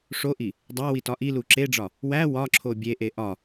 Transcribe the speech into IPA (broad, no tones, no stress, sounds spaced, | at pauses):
ʂ o ʔ i | dˤ æ w i t ɒ ʔ i l u ǁ e ɖ͡ʐ ɒ | w æ w ɒ ǁʰ o bʲ e ʔ e ʔ ɒ